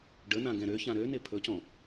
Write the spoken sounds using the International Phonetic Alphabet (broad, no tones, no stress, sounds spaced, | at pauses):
ɖ ə n ã ɡ ɛ̃ ɾ ø ç ã ɾ ø n ɪ pʰ ɵ c ɔ̃